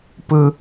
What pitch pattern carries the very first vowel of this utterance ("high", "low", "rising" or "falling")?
high